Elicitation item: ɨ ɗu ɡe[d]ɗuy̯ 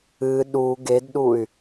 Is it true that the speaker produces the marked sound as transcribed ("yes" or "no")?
yes